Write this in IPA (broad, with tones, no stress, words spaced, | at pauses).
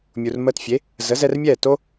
mʲu˩r məː˧tfʲe˩˥ | zə˩˥zɛ˧rmʲɛː˥˩ to˥